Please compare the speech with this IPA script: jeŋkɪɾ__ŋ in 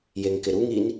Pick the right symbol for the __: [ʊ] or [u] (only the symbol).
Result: u